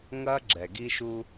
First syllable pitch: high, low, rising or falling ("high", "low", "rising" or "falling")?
high